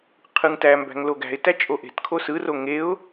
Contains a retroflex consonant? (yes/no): no